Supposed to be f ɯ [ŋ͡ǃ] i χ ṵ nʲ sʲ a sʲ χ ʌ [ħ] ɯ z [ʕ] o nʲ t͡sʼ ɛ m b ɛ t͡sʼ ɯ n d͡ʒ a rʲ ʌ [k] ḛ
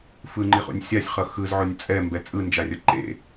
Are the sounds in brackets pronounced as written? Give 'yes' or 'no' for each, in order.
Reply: yes, no, yes, no

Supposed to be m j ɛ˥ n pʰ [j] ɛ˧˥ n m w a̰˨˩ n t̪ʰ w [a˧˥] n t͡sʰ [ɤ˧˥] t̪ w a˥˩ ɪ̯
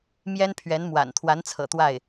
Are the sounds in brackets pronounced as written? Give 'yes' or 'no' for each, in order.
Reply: no, yes, no

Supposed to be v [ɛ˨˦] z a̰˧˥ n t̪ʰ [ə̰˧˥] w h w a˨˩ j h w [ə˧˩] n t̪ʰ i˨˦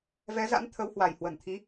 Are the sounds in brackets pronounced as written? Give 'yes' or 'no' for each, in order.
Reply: yes, no, yes

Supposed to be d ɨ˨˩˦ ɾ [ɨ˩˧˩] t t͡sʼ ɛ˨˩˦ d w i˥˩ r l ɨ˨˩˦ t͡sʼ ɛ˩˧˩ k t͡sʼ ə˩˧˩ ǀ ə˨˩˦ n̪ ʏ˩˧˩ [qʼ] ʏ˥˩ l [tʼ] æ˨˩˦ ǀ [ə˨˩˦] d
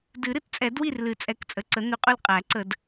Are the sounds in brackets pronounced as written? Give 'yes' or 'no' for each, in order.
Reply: no, yes, no, yes

